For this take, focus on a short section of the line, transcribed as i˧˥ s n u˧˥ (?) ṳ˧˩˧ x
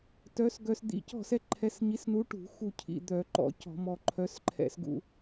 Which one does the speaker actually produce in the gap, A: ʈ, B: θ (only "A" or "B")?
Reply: A